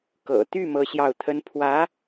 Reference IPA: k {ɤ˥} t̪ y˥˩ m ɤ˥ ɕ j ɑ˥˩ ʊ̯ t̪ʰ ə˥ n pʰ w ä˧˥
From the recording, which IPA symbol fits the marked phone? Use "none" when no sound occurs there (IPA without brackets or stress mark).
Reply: ɤ̰˨˩